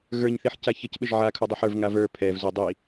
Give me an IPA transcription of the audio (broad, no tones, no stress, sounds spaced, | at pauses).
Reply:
ɣ ə˞ ɲ θ i ħ c a ç ə c ɓ ɘ ʒ ʕ a kʰ u dˤ u ħ ə˞ v ŋ a v ə˞ pʰ ɛ v z u dˤ i